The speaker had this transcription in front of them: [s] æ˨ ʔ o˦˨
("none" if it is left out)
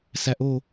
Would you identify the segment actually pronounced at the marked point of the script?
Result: s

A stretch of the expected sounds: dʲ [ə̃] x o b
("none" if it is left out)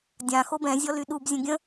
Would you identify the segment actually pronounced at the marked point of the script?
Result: ã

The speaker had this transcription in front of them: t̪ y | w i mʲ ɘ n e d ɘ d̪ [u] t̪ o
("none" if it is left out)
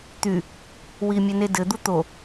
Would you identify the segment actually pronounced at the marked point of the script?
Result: u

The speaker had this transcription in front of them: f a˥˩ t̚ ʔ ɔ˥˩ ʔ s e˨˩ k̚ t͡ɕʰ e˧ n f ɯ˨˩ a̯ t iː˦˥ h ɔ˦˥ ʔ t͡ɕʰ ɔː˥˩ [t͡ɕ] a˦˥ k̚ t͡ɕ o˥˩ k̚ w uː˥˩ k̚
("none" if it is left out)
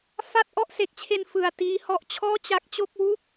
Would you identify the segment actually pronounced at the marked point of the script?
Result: t͡ɕ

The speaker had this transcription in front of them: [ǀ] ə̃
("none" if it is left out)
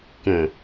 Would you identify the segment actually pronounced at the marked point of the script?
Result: k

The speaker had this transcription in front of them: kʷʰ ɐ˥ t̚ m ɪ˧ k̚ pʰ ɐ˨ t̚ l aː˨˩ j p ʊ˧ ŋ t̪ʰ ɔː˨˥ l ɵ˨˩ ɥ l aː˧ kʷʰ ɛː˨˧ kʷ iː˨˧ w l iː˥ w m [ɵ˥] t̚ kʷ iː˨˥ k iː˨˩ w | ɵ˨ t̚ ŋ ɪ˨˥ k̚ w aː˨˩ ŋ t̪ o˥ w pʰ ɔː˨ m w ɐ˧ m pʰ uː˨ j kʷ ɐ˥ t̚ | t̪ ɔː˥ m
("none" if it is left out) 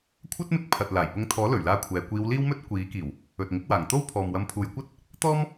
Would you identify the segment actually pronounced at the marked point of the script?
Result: ɵ˥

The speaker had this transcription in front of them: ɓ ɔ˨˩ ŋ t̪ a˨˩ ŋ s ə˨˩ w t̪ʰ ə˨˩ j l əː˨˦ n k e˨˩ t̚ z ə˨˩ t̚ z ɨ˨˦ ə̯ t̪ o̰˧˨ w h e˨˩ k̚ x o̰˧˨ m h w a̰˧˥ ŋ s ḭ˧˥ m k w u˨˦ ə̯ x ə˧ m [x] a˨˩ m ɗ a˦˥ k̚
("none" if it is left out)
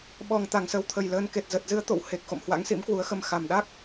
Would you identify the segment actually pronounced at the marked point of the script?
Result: x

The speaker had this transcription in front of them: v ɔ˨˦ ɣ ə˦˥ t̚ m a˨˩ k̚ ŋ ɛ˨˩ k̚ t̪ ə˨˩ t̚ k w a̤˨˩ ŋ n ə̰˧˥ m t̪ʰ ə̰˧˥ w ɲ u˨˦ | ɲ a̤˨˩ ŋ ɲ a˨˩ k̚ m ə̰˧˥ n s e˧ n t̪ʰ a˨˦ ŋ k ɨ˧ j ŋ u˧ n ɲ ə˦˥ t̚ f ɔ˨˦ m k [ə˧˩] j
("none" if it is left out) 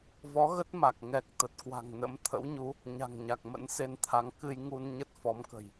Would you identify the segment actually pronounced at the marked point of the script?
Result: ə̤˨˩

